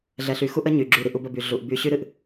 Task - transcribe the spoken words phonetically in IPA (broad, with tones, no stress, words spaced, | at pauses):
ɮɛ˨ɬy˨xu˦ʔə˦ ɲy˨ ɡ͡ǁy˨ɾi˨ʔu˨bə˨ by˨ ɮu˨ʔby˦ ɕy˦ɾɨ˨ʔ